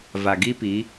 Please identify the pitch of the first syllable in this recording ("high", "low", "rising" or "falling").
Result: low